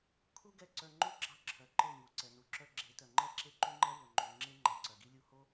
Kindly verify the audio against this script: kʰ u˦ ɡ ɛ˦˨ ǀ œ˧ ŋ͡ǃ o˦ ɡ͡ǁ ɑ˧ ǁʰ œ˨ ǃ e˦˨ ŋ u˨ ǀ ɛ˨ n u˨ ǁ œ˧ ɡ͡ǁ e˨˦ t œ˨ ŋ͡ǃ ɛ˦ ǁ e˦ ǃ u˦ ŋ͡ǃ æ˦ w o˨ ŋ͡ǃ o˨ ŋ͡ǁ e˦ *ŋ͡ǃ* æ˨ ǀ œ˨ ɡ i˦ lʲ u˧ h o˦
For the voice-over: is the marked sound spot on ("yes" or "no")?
yes